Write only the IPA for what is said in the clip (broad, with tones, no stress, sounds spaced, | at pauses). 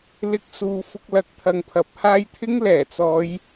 l ɪ˧ k̚ s uː˨˧ f ʊ˧ k̚ l ɐ˨ k̚ t̪ʰ ɐ˨ ŋ pʰ ɐ˨˥ p̚ h aː˧ j t̪ʰ ɪ˥ ŋ l ɛː˨˩ t͡s ɔː˨˧ j